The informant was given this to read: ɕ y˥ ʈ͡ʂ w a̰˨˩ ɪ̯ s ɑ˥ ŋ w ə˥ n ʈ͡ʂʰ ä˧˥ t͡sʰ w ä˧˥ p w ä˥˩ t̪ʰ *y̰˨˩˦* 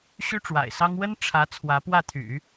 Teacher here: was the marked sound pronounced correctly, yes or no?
yes